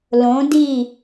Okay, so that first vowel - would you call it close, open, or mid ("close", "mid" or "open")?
mid